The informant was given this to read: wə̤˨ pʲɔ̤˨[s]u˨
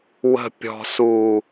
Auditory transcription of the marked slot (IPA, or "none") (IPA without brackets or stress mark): s